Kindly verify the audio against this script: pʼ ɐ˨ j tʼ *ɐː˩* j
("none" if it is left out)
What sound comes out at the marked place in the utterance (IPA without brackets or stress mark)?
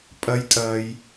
ɐː˩